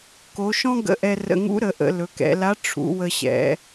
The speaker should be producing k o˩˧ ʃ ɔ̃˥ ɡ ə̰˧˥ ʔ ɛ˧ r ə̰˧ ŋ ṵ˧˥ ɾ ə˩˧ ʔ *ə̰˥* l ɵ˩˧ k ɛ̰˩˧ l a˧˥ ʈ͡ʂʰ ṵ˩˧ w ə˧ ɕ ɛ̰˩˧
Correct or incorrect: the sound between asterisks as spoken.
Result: incorrect: ə̰˩˧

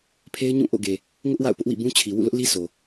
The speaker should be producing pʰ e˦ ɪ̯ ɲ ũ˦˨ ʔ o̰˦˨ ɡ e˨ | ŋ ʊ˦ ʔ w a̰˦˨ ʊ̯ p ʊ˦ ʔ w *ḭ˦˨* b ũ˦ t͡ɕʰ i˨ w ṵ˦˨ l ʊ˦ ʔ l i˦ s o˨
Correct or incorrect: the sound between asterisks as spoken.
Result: correct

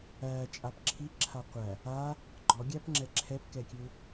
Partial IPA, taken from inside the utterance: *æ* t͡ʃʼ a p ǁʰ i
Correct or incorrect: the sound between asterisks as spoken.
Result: correct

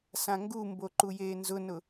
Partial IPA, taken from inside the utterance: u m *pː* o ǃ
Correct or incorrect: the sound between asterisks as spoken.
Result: incorrect: b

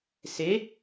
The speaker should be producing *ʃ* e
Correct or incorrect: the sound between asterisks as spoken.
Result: incorrect: s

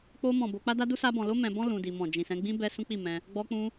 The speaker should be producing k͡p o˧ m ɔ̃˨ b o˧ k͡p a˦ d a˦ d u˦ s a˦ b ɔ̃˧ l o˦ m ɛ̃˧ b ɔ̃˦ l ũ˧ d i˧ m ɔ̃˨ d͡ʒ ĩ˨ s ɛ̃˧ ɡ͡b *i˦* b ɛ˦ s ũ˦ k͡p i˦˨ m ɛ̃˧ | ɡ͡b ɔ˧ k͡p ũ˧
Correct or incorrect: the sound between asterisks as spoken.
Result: incorrect: ĩ˦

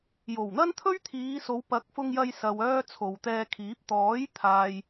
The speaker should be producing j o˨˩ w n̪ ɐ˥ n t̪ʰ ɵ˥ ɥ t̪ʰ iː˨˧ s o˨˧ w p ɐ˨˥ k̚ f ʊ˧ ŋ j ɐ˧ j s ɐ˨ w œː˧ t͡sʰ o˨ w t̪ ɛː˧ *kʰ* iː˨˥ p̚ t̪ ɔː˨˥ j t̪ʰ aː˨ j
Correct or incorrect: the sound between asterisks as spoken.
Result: correct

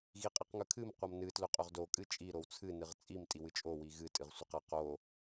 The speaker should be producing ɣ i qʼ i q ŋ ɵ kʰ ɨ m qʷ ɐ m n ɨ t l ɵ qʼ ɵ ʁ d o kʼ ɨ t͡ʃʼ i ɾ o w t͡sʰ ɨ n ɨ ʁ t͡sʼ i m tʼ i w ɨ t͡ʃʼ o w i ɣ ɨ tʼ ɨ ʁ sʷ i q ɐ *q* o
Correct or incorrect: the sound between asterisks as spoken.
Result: correct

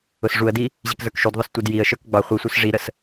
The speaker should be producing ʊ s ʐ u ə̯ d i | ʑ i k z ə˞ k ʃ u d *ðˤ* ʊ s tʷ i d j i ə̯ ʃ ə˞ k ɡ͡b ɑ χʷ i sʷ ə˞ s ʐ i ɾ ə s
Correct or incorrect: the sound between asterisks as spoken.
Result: correct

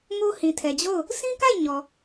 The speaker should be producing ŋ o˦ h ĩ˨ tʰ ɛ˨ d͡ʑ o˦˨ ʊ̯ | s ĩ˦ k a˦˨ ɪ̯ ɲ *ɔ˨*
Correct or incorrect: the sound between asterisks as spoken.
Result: correct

